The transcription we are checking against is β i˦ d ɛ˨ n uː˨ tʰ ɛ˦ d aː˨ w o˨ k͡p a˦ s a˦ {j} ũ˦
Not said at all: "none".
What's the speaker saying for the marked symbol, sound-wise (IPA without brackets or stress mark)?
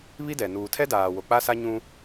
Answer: ɲ